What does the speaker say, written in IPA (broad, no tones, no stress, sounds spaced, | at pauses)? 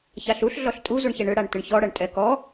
ç a ɬ u ɬ ɮ ɔ ɬ tʼ u z u ɳ ç ɛ ɳ ʏ ɽ a ɳ t ʏ ɳ ç ɔ ɽ ɐ ɳ tʼ ɛ k ɔ